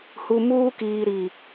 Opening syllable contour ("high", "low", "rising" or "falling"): low